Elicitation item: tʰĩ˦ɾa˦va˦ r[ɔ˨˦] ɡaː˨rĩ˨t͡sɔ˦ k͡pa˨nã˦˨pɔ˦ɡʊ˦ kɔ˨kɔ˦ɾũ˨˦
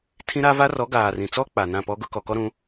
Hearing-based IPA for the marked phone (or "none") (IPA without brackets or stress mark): ɔ˨˦